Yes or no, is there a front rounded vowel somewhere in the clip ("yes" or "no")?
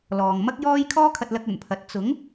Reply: no